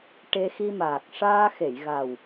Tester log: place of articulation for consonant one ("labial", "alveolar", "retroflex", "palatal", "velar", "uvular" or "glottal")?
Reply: retroflex